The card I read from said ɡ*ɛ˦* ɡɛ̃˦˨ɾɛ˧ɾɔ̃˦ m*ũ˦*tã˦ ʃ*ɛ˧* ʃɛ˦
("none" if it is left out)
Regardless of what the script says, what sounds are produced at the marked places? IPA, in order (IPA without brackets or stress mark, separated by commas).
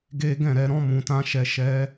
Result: e˦, ũ˧, ɛ˧